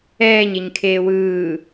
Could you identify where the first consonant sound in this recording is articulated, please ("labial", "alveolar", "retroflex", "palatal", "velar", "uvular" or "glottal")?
palatal